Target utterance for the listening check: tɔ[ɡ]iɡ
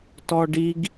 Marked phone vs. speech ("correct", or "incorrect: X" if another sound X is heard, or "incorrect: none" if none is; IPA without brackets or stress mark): incorrect: ɖ